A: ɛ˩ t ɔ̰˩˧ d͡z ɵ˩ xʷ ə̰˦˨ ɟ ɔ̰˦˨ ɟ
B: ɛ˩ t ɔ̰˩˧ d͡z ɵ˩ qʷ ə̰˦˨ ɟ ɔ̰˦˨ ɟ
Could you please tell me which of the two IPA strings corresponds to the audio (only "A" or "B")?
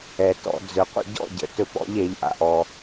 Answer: B